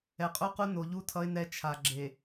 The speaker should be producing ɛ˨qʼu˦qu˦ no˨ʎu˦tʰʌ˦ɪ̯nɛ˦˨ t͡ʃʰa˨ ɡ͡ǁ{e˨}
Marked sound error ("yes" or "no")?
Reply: no